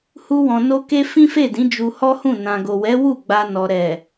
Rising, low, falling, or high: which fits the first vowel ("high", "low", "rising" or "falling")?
high